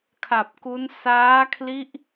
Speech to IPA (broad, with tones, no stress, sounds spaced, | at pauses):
kʰ a˨˩ p̚ k u˦˥ n s aː˦˥ kʰ l i˦˥ ʔ